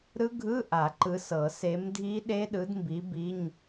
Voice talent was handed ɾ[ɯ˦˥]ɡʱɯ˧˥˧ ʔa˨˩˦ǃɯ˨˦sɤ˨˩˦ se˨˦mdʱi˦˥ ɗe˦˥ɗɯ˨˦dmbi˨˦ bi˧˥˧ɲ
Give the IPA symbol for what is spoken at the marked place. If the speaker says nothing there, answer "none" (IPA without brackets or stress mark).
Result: ɯ˦˥